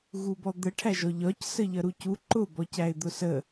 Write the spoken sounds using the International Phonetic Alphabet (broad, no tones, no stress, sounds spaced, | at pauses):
ɣ u b ɔ d̪ ə ʈʰ æ ʒ ɔ ʎ ɒ c s ə ʎ ʌ ɾ u c u ǃ ʊ b ɔ c æ ɪ̯ d̪ ʊ s ə